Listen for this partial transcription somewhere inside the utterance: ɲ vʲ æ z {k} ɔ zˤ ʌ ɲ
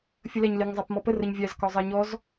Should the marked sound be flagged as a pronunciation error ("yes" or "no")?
no